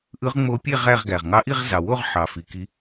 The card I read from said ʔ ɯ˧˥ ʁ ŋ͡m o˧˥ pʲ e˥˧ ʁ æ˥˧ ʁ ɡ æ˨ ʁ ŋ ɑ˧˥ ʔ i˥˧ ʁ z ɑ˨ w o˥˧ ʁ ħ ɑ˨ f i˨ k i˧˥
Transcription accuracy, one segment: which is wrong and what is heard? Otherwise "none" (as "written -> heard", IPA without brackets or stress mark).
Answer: none